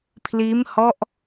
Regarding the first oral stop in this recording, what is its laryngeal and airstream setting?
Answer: aspirated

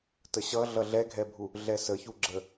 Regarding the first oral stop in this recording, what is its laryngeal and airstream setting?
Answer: plain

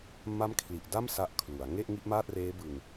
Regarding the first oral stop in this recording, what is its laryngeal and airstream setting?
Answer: aspirated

